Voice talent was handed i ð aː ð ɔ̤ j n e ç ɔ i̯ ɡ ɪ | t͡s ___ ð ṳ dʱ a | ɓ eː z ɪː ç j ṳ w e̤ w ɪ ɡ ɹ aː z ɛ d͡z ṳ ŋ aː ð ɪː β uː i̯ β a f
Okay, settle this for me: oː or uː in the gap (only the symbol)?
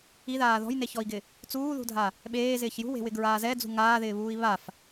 uː